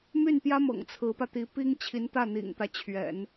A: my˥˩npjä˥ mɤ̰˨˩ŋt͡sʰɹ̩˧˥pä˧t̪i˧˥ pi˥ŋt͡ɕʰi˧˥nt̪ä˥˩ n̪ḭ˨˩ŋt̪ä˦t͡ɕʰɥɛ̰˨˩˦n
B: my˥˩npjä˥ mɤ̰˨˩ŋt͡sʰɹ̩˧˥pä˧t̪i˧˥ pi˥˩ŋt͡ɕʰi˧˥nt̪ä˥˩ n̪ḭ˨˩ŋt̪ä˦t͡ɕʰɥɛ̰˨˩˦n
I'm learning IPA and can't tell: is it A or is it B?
A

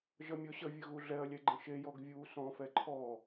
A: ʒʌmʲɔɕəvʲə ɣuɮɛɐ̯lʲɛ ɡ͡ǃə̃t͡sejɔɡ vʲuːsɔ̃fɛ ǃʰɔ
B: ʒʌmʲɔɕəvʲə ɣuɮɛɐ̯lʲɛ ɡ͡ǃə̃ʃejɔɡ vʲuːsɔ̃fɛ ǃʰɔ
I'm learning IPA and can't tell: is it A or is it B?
B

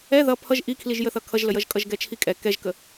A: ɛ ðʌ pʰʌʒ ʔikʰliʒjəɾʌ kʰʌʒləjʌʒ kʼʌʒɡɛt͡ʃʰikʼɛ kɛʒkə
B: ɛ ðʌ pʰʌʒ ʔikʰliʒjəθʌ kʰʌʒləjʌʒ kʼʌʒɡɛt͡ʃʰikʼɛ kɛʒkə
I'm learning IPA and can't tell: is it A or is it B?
B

